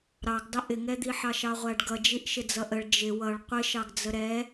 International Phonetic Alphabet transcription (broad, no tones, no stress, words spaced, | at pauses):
ɾɑɡdˤɪ ʔɪŋɛd̪i ħɑʃɑʁʷæɖɡʌ d͡ʒiʔʃɪd͡zʌʔəɭ d͡ʒɪ wʌɭ qʷɪʃɑɡ d͡zəɾɛ